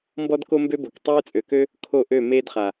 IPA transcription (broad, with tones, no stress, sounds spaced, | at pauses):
m b ɔ˦ d k o˦ m b ø˦ b o˨ k tˤ øː˦ t͡sʼ ø˨ k ø˦ | kʰ o˦˨ ʔ ø˦˨ m eː˦ d χ a˨